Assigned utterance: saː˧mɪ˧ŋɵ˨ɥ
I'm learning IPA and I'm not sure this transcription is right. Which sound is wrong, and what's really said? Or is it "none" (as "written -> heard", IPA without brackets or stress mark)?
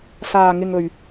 m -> ŋ